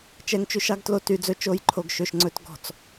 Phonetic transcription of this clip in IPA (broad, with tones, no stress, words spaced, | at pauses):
t͡ʃɛ˨ŋt͡ʃʉ˨ʃɑ˦ɡtlo˨ ty˨d͡zɵ˦ t͡ʃo˨˦jǃʰo˨ɡ ʃø˨ʃŋ͡ǀɵ˦t ɡɔ̤˨t͡s